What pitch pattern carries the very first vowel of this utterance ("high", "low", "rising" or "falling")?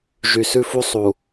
low